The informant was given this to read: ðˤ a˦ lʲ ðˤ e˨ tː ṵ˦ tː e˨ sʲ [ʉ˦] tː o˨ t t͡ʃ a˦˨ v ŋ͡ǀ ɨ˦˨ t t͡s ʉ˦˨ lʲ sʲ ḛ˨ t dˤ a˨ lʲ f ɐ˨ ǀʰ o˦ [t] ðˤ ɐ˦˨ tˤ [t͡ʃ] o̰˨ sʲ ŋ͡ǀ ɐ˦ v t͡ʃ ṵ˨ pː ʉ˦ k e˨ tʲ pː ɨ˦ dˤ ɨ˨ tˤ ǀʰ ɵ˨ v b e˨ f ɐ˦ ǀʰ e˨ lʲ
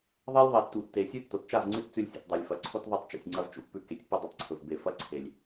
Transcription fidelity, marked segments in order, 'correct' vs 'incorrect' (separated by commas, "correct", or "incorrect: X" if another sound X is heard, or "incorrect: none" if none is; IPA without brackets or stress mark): correct, correct, correct